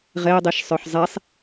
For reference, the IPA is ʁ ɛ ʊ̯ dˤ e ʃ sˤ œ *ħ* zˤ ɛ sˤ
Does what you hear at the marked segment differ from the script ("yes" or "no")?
no